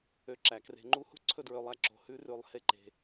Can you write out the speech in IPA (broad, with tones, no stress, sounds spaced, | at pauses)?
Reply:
ø˨ ǁ æ˩ k r e̤˨ ŋ͡ǃ u˦ h ṳ˥ ǀʰ ɵ˦ d ɹ ø˨ lˠ æ˦ ǁ o̤˨ h ʉ˦ r ʉ˨ lˠ h e˥ ǃ e̤˨